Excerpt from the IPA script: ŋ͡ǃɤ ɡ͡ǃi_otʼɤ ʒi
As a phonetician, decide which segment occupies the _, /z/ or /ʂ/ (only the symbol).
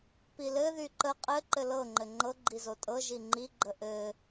z